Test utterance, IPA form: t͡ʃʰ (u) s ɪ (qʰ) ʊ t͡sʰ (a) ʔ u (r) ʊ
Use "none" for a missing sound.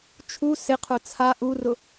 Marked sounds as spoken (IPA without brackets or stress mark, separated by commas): u, qʰ, a, r